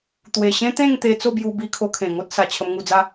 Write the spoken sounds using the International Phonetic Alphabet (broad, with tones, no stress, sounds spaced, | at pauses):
t̪ w e˨˩ ɕ ẽ˦ t̪ ẽ˥˧ ŋ t̪ e˧ t͡s o˥˧ b j u˧ b i˧ kʰ o˧ kʰ ẽ˨˩ ŋ o˦ t̚ s a˨˩ t͡ɕʰ ə˧ m ŋ u˧ d͡z a˦